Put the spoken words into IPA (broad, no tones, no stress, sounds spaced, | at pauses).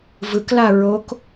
v ɯ k l a ɹ o k